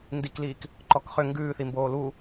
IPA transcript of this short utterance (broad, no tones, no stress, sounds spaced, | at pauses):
n d i k l iː k | ǃ ɔ k χ ʏ ŋ ɡ ʉː θ i m b oː l u